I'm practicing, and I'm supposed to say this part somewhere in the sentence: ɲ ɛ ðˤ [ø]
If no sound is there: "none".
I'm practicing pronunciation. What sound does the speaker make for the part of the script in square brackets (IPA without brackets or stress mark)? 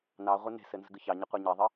ɘ